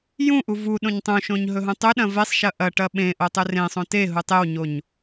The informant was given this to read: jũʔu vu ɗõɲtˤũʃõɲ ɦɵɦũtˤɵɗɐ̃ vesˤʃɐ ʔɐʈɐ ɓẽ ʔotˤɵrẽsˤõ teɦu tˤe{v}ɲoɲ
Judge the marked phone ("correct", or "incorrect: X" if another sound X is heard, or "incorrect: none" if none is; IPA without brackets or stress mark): incorrect: w